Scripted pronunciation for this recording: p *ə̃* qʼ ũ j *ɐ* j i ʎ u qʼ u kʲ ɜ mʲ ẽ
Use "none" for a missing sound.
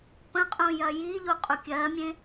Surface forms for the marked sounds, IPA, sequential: ə̃, ɐ

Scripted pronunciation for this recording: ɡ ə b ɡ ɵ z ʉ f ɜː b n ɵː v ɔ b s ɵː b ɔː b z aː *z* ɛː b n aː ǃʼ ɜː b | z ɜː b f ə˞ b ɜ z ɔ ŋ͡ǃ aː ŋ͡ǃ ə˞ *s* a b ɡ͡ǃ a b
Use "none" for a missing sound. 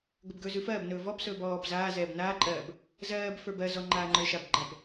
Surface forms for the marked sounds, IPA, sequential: z, ʃ

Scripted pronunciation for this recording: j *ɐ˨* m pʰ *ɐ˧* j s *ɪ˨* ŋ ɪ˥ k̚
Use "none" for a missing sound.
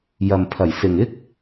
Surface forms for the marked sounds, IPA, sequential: ɐ˨, ɐ˨˩, ɪ˨

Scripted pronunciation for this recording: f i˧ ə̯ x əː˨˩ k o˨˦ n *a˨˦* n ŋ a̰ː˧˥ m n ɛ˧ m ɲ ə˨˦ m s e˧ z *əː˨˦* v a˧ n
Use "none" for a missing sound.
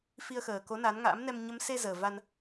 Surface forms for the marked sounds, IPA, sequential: a˨˦, əː˨˩

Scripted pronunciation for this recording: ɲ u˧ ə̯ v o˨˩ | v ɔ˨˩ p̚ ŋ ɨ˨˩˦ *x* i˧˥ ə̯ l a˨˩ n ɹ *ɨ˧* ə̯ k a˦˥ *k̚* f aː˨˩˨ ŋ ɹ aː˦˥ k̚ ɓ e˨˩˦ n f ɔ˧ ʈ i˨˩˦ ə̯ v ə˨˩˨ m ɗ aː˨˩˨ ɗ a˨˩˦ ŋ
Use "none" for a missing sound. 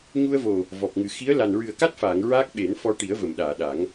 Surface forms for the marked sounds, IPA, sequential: x, ɨ˨˩, t̚

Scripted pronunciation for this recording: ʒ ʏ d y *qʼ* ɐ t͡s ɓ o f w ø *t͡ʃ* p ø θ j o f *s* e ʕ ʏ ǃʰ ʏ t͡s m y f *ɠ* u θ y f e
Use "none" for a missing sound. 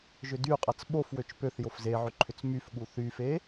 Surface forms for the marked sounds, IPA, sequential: qʼ, t͡ʃ, z, ɠ

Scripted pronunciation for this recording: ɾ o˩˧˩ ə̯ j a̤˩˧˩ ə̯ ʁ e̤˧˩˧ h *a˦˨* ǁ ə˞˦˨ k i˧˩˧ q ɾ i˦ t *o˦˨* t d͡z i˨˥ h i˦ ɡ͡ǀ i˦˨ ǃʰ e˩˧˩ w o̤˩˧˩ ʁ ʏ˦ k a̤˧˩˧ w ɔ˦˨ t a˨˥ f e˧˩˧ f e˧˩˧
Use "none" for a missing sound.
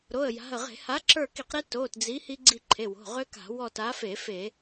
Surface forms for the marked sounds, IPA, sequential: a˨˥, o˩˧˩

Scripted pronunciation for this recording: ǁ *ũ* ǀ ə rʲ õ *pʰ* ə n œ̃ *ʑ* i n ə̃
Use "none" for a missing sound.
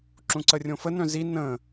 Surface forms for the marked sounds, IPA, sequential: ũ, f, z

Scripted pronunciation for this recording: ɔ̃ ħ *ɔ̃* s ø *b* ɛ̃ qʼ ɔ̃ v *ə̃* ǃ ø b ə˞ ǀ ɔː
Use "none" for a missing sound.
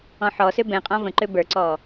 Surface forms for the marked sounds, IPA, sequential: ɔ, b, ə̃

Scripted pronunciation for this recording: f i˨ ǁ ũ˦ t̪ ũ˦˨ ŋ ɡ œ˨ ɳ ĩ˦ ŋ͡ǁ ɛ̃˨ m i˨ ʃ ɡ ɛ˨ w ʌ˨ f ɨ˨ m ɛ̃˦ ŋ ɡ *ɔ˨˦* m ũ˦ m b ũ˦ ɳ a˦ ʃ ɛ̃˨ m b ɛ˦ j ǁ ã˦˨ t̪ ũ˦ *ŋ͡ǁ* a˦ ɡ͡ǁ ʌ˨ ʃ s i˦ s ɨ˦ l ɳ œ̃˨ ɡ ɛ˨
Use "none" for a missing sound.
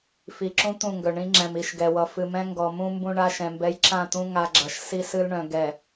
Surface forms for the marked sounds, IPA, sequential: ɔ˨, ŋ

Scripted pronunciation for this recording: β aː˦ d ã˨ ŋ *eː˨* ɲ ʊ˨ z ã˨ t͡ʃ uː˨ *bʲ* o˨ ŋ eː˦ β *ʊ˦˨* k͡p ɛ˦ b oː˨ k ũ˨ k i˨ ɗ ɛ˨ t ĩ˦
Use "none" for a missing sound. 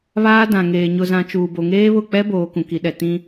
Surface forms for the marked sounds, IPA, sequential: eː˨, b, ʊ˦˨

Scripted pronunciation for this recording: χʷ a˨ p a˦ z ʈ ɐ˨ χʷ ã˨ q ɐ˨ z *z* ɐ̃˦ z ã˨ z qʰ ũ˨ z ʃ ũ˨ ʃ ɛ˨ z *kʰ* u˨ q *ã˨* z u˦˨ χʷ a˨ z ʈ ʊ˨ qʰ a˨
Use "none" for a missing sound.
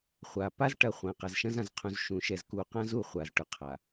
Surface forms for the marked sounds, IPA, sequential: ʃ, k, ã˦

